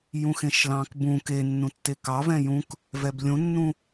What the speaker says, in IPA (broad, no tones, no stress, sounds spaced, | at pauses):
j ũ x ẽ ʃ l ɑ̃ k b ũ k e nː ũ tː e k ɑ v ɛ̃ j ũ k | v ɛ b lʲ ũ nː ũ